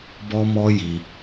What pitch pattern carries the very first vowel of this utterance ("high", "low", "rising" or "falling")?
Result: high